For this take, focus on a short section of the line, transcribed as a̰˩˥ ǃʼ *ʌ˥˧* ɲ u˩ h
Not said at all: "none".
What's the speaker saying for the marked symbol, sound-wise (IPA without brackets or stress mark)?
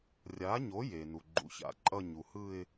ʌ˥˧